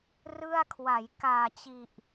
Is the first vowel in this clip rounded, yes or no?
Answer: no